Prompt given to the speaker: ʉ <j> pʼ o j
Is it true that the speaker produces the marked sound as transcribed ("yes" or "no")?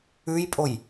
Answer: yes